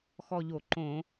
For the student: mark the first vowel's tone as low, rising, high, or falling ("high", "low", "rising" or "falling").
falling